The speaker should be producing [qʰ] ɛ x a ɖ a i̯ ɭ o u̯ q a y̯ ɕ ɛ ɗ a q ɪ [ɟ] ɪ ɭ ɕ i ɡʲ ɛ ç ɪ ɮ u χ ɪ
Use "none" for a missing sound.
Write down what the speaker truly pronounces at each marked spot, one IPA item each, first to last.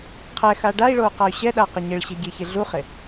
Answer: qʰ, ɲ

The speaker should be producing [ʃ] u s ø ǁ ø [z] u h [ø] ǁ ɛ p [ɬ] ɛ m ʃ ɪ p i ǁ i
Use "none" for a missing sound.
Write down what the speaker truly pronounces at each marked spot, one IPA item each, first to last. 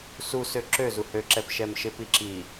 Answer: s, z, ø, ʃ

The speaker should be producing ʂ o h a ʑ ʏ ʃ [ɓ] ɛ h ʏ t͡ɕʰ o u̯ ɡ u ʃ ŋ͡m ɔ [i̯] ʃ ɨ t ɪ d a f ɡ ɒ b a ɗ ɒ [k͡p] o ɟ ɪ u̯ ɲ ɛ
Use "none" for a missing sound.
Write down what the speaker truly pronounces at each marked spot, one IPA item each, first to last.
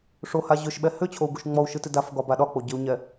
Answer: ɓ, u̯, k͡p

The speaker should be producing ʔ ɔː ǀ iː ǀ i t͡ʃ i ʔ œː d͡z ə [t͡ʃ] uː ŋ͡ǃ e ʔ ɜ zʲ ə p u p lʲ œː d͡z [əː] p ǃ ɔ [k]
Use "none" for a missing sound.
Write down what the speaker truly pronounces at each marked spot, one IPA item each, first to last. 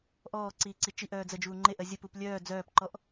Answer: d͡ʒ, œː, ʔ

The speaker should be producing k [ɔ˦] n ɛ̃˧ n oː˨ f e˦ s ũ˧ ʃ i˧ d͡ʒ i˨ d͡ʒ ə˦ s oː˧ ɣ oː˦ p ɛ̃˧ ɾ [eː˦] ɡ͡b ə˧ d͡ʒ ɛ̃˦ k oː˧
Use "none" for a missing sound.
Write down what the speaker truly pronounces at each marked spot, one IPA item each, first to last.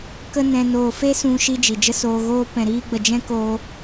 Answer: ə˦, iː˦

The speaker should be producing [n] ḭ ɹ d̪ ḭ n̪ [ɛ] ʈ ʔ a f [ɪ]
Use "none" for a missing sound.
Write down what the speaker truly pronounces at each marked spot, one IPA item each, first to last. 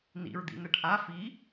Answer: n, ɛ, i

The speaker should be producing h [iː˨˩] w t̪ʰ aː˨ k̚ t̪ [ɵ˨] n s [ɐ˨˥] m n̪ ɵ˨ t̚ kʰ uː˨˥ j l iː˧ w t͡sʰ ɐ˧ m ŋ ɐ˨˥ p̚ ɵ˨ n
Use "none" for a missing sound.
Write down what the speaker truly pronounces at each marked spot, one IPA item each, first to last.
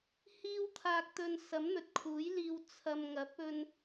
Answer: iː˧, ɵ˨, ɐ˨˥

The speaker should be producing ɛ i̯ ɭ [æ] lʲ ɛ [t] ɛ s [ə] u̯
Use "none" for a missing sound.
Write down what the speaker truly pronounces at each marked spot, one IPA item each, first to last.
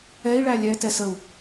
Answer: æ, t, ə

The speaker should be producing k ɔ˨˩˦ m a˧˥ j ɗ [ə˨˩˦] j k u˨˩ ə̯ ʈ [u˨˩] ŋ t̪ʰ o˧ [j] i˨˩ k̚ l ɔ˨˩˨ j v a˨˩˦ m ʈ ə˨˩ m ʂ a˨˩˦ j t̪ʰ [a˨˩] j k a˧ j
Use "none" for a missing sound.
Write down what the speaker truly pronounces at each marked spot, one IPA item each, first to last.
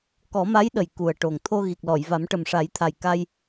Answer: ə˨˩, o˨˩, ɣ, a˨˩

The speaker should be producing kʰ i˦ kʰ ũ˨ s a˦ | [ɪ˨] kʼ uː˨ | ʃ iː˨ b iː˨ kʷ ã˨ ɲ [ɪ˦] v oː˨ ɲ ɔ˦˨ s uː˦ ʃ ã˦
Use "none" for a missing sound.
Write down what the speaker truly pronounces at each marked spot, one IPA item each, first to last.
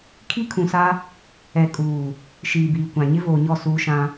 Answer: ɛ˨, ɪ˦

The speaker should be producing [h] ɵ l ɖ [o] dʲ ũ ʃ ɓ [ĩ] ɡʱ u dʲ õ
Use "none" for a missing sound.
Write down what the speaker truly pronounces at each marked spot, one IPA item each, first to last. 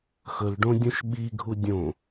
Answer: x, õ, i

